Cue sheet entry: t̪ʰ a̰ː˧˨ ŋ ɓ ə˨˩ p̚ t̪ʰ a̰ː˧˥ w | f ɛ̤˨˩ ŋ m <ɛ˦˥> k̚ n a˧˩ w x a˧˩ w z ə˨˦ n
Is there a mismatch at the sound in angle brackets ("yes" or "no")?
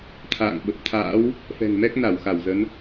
no